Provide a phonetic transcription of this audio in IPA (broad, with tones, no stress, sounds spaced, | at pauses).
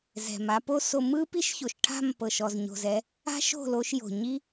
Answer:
z ɛ̤˨ m a˧ p o˦ s o˧ m ɯ˦ p i˦ ʃ ç o˨ ʃ ʈʰ a̤˦˨ m p ɤ˨ ʃ ɔ˨ z ɲ o̤˨ z ɛ˦ | a̤˦ ʃ o̤˦˨ l o˦ ʃ j o̤˨ ɲ i˦